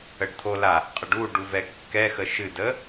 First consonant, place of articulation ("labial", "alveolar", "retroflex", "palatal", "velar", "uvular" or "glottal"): retroflex